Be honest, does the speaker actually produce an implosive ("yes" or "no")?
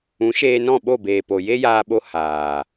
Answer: yes